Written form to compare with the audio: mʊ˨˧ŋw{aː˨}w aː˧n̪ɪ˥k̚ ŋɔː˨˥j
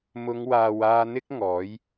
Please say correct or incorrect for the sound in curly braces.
correct